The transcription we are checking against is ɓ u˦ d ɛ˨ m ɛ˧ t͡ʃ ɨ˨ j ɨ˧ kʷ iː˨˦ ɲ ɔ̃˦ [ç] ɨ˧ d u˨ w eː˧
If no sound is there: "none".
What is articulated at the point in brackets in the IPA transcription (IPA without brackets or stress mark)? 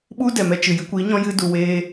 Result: j